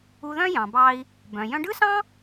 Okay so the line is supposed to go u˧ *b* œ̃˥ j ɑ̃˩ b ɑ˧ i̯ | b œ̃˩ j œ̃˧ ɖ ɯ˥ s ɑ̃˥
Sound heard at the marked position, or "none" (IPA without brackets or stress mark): ð